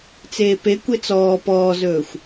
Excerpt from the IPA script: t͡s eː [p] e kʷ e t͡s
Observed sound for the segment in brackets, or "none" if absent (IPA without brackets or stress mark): p